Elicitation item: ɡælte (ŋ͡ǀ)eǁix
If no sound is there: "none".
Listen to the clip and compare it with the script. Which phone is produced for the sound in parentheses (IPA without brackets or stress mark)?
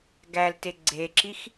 ɡ͡ǀ